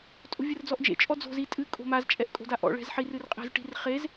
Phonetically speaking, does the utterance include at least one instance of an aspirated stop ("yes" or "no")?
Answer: no